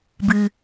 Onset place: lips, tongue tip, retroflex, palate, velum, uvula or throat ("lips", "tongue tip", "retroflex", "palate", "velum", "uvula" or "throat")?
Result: lips